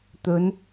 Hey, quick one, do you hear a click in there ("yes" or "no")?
no